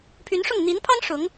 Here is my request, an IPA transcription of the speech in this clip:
pʰ y˧˥ n ʂ ʊ˥˩ ŋ n̪ i˧˥ n pʰ ɑ˥ ŋ ʂ ʊ˧˥ ŋ

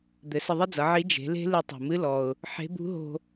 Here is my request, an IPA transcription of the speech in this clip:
d̪ ɘ˩˧ s ə˧ ðˤ ɘ˥ d͡z ʌ˩˧ ʕ i˧˥ d͡ʒ e̤˩˧ l e̤˥ l ɨ˧ tˤ o̤˩ m ɨ˧˥ l ɔ˩ ʊ̯ | ħ e̤˧˥ b ṳ˧˥ ɦ o̤˧

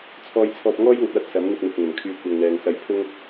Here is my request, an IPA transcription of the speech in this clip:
t͡sʰ ɔː˧ j t͡sʰ ɔː˧ p̚ ŋ ɔː˥ j ŋ ɐ˨ t̚ w ɐ˥ t̚ s ɐ˨˥ m n̪ ɪ˧ k̚ n̪ ɪ˨ k̚ ŋ ɵ˨˩ n kʰ yː˧ kʷ ɐ˧ ŋ n̪ ɛː˧ ŋ s ɐ˧ j pʰ ʊ˥ ŋ

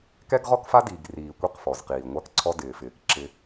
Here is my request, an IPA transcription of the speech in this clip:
k ɛ˦ ɡ ʁ ɔ˦ k f a˦ d iː˨ ɡ r iː˨ kʷ i˦˨ q f ɔ˨ z q iː˨ ŋʷ a˦ k ǀʰ ɔ˦ d ɪː˨ f ɪː˨ k ǁ ɪ˦

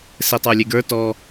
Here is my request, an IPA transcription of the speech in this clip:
s e tˤ ə˞ lʲ e ɡ ə˞ t ɔ

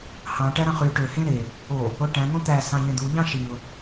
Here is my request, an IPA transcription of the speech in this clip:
h ɑ̃ ʈ æ ɾ ɑ̃ χ y ʈ ø h ẽ ɾ e | o | o ʈ æ̃ ŋ õ t̪ æ s ɑ̃ ʎ ẽ d̪ u ʎ ɑ̃ ʃ i ʊ̯

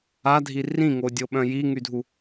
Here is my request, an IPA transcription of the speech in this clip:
a dʱ i r ĩ ŋ o dʲ o ɓ œ̃ j i ŋ y dʱ u

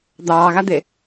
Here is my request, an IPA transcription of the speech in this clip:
d̪ ɑː ɣ a d̪ e

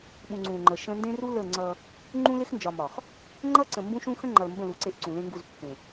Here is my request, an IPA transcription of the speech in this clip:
ɓ ũ˨ ŋ͡ǀ ũ˨ ŋ͡ǃ ə˨ ʃ ə̃˦ n d ẽ˦ r u˦ l ə˦˨ ŋ͡ǀ ʌ˦ | ŋ͡ǃ ũ˦ l ɪ˦ x n d͡ʒ ɒ˨ m ɒ˨ x | ŋ͡ǃ ʌ˦ ǀ ə̃˨ m b ũ˦ ʃ ũ˦ x ə̃˦ ŋ͡ǃ ʌ˨ l m b ə̃˦˨ l u˨˦ ǀ e˦ ʔ ǀ ũ˨ l ẽ˦ ŋ ɡ u˦˨ z pː ẽ˨

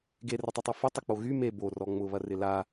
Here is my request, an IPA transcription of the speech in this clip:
ɡ e r ə tˤ ʊ tˤ ʊ f ə tˤ ɪ k͡p o ɣ y m e b o r ɔ ŋ͡m ʊ β ɐ r ɪ l a

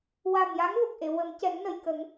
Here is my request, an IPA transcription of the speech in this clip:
w a˨˩ m j a˧˥ ŋ v ə˨˩ k̚ ʔ e˨˩˨ w ə˨˩˦ m c ɛ˨˩˦ ŋ n ə˨˩˨ j k ə˨˩˦ ŋ

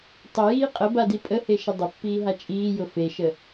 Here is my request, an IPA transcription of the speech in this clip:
tˤ ʊ j iː qʼ ə b a d i pʼ ə h e ʃ ə dˤ ʊ pː iː ɦ a t͡ʃʼ iː j ʊ f e ʃ ə

